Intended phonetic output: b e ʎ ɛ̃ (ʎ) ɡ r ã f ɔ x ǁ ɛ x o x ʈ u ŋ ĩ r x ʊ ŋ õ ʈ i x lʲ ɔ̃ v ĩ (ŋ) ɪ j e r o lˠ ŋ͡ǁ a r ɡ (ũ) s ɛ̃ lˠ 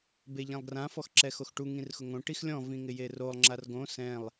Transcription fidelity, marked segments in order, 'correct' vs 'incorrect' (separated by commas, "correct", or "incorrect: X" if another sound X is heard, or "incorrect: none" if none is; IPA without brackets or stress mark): incorrect: lˠ, correct, incorrect: õ